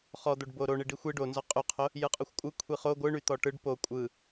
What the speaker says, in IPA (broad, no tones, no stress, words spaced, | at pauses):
χɔ d̪oɖboɾo ɳiɖixʷi ɖo nzɔqʼyqʰo | jɯqʼoxʷkʷʼɯ kʷʰiχo ɡʷɯɳyt̪ɔ ʈɯɖ po kʷʼɯ